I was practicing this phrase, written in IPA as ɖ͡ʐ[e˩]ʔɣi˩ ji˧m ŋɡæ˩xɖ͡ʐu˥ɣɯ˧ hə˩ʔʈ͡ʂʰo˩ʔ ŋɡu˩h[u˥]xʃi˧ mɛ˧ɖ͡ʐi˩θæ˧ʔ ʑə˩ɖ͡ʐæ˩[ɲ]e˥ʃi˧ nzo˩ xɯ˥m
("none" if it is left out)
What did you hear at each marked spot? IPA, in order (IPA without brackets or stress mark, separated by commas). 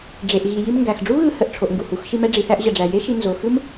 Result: e˩, u˩, j